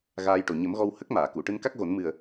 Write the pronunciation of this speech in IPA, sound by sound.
ɣ aː˧ j ʈ o˨˩ ɲ ə˨˩˦ m ɣ ɔ˧ w h ə˦˥ k̚ m aː˨˩˨ k u˨˩˨ ʈ ɨ˧ n k a˦˥ k̚ ɣ o˨˩˦ n m ɨ˨˩ ə̯

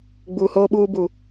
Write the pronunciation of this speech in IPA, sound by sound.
ɡ͡b u˨ h oː˦ ɓ uː˦ b u˨

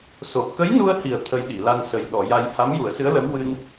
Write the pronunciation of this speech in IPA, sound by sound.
s o˨˩ p̚ k ə˧˥ j n u˧ ə̯ h i˨˩ ə̯ t̪ʰ ə˧ j ɗ i˨˩˨ l a˧ n s ə˨˩ j ɗ ɔ˨˩˨ j a˧ j h a˧˥ m j u˨˩˦ ə̯ s ɨ˧˥ ə̯ l ə˧˥ m w ɨ˧ n

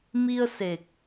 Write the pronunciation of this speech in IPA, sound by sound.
m i˧ ə̯ s e˨˩ k̚

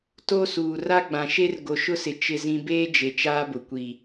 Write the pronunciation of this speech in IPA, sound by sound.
t o˦ s uː˨ r a˦ ɡ͡b ã˨ ʃ e˦ r ɡ o˨ ʃ ʊ˦ s ɪ˨ t͡ʃ ɪ˨ z ĩ˨ b eː˦ d͡ʒ e˨ t͡ʃ aː˦ b ʊ˨ kʷ i˨

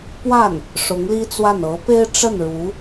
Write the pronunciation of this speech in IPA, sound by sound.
p w a˥˩ n | ʂ ʊ˧˥ ŋ l i˥ t͡s w a˥˩ n ɤ˧˥ p e˥ ɪ̯ ʈ͡ʂ ə˥˩ n ɻ u˧˥

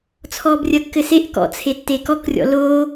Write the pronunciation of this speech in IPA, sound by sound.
t͡sʰ ɔː b rʲ ɐ kː ɘ s e ʔ k ɔ̰ t͡sʰ e tː e k ɔ k rʲ ɔ̰ l oː

